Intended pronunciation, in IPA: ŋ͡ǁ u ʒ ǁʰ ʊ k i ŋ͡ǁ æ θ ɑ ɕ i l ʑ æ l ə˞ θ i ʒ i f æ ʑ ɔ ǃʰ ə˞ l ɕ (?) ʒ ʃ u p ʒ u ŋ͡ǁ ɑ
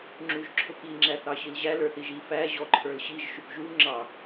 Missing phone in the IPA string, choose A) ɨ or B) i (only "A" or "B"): B